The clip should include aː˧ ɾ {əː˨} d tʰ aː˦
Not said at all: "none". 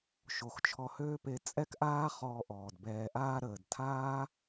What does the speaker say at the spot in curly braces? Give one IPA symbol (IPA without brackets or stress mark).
əː˨